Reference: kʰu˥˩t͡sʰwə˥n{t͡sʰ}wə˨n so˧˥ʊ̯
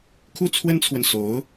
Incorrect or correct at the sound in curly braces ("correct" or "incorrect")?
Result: correct